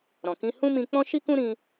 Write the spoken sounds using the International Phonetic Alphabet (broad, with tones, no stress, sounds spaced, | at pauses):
ɾ ɔ̃˨ k ĩ˧ h ũ˦ m ĩ˧ k͡p ɔ̃˦ ʃ i˦ k ũ˦ ɾ ĩ˧